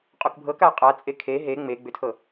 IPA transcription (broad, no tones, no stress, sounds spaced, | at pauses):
qʼ o k bʱ ɤ k a qʼ a t͡sʼ e kʰ e ɦ e ŋ͡m e ɡ͡b ʏ tʰ ɤ